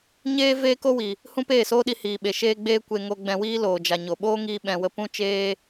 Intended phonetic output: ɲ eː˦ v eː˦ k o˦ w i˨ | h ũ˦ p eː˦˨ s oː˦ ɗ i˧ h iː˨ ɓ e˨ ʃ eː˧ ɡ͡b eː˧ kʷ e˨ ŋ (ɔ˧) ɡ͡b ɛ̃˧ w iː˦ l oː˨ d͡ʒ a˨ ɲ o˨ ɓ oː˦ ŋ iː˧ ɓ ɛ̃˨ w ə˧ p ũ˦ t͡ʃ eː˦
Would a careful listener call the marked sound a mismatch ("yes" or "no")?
yes